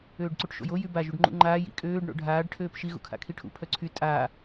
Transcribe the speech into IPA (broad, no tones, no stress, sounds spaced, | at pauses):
øː ɖ ǀ u ʈ ʃ o̰ j o j y b a ʒ u ɖ ŋ͡ǃ ṵ ŋ͡ǃ aː j ḭ kʼ øː ɖ ɳ o̰ ɖʱ aː ɖ ʈʰ øː p ʃ i ɣ ṵ kʰ a̰ kʰ i ʈʰ ṵ pʰ œ ǀʰ y tʼ a